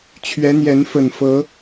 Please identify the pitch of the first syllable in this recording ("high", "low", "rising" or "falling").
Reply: rising